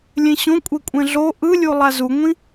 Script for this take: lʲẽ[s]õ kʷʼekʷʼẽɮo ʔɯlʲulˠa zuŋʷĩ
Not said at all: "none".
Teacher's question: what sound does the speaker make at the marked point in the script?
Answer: ɕ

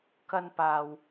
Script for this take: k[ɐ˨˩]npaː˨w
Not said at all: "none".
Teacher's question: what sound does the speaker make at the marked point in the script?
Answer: ɐ˧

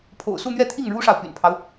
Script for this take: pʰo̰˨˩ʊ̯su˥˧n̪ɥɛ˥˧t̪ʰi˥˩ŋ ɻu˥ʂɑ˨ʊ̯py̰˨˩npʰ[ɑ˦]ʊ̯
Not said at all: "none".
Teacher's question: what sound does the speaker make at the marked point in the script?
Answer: ɑ˦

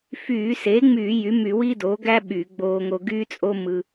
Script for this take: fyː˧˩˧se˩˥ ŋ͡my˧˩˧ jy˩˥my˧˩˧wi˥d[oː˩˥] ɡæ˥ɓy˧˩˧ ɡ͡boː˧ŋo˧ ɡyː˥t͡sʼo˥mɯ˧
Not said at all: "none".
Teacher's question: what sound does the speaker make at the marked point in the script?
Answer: oː˩˥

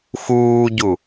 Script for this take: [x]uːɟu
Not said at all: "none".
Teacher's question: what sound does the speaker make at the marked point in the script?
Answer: x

